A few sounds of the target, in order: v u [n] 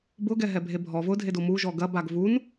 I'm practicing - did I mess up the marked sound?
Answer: no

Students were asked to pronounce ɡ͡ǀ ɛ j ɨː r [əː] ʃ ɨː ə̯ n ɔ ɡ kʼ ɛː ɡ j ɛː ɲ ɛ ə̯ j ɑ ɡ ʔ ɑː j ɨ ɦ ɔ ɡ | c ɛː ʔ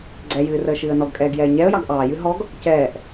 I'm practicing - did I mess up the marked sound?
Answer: no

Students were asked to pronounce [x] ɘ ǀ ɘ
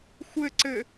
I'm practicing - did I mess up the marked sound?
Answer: yes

